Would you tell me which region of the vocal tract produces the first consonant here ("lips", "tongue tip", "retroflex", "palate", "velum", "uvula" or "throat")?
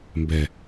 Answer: lips